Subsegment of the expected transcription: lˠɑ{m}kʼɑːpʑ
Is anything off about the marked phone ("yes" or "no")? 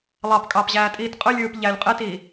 yes